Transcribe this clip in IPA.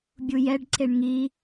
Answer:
bʲ u j ɛ ɖ ǀ e ɳ ŋ i

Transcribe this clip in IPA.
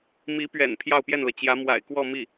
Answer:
m i˧˥ p ɥ ɛ̰˨˩ n pʰ j ɑ˥˧ ʊ̯ p j ɛ˥˩ n l ɤ˩ t͡ɕ j ä˧˥ m w a̰˨˩ ɪ̯ k w ɔ˥˧ m i˥˩

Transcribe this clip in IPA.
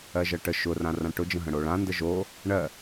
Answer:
ɜ ʒ ɜ ʈ ə ʃ ʊ r ã r ã ʈ ʊ d͡ʒ ə̃ ɦ ə̃ ɽ o ɭ ã n d ə ʒ o | ɳ ɜ

